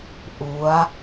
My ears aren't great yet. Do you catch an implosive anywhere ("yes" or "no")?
no